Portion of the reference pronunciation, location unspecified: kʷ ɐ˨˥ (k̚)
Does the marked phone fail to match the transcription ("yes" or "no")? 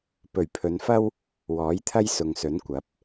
yes